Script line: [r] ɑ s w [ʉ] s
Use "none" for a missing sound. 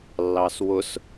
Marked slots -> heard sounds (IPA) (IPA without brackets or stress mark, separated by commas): lː, ʊ